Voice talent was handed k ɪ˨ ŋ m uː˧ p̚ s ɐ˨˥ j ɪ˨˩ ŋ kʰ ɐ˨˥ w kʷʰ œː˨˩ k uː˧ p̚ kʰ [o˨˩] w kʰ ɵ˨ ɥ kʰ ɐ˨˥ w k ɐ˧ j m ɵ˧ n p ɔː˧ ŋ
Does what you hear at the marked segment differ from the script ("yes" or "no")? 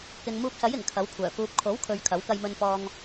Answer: yes